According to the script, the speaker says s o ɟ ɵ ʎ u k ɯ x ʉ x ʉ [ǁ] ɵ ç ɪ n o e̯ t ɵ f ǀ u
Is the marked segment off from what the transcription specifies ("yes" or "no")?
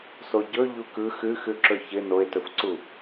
no